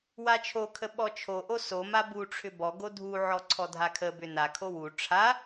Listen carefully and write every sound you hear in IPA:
w a t͡ʃʰ o kʰ ə ɓ ɔ t͡ʃʰ o ʔ o s o m a b u ʈ͡ʂʰ ʏ b ɔ ɡ o dʱ u ʕ ɔ ǀʰ ɔ dʱ a kʰ ə b ʏ n a kʰ o w u ʈ͡ʂʰ a

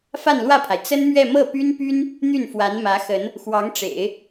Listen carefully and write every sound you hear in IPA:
f a˥˧ n l w ä˥˩ pʰ a˩ ɪ̯ t͡s ə˥ n m ɥ ɛ˥˧ m ɤ˥˩ p y˥ n p y˥ n | n̪ y˥˩ n f w a˧˥ n m ä˧˥ x ə˧˥ n | x w ɑ˧˥ ŋ ʈ͡ʂ ḛ˨˩˦ ɪ̯

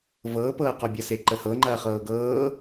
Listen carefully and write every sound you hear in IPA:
v ɤː p ɤː q ɔ bʲ ɐ s e ǃ ə h ɤ ŋ͡ǃ ɐː χ ɤː ɡ ɤː

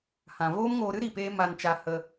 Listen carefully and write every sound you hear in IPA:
h ã˨ v oː˦ m ŋ oː˧ ɾ ɨ˦ ɾ i˨ p eː˧ m a˧ n t͡ʃ a˧ h ə˧

